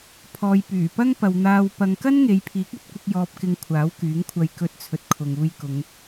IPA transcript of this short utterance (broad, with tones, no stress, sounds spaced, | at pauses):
pʰ ɔː˨ j p yː˨˩ p ɐ˥ ŋ p ɐ˨ w n̪ aː˧ w p ɐ˧ ŋ k ɐ˥ n ŋ e˨˧ j pʰ iː˨˥ k̚ ɵ˧ t̚ kʷ ɪ˧ k̚ j ɔː˧ p̚ k ɪ˧ ŋ kʷʰ aː˨˥ w k yː˨˥ ŋ kʷʰ ɐ˧ j k ɵ˧ t̚ t͡sʰ ɵ˨˥ t̚ kʰ ʊ˨ ŋ uː˧ j k ʊ˨˧ ŋ